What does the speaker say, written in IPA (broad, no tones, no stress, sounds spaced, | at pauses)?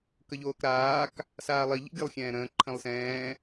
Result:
k ə ʎ oː k ɾ aː k | s aː lˠ i ʎ ḭ ɡʲ ə lˠ xʲ ɛ̃ː ɾ ə̃ː ǃʰ ə̃ lˠ s ɛ̃ː